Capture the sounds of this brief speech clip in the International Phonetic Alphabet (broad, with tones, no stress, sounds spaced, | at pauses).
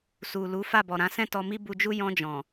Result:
s u˨ l u˨˦ f a˦˨ b ɔ˨ ɾ ã˨˦ s ɛ̃˦˨ t ɔ˧ m i˦ b u˧ d͡ʒ u˦ j ɔ̃˧ d͡ʒ ɔ̃˨